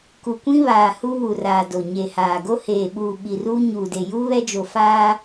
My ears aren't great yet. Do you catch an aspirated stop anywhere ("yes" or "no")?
no